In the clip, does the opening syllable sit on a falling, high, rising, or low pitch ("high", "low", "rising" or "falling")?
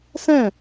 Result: falling